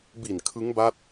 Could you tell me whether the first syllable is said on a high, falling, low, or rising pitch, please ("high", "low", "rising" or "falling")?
low